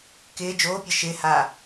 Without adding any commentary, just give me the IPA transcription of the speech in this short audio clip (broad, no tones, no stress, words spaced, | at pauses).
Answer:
kɪː d͡ʒoːpʲɤ ʃɪːhaː